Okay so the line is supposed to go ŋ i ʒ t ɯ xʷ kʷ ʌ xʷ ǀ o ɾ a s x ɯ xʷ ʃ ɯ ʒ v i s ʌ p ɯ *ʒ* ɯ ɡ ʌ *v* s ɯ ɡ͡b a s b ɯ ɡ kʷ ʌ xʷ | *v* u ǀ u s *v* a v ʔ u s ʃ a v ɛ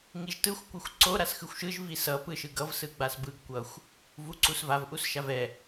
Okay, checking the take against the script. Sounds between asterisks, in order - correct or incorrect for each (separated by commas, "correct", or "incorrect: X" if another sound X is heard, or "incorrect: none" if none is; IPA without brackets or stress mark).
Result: incorrect: ʃ, correct, correct, correct